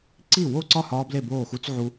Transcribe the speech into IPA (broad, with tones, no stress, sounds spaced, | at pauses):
ǀ i˥˩ w o˥˩ ǀ ɒ˥˩ h ɒː˦˥ b l e˥˩ b oː˥˩ x u˦˥ t͡s ʕ u˦˥